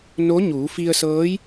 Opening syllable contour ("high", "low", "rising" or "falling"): rising